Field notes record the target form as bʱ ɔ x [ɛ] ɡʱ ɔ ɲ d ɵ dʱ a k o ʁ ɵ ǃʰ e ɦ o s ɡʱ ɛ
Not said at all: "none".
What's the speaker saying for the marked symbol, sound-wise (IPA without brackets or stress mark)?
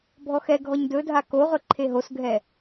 ɛ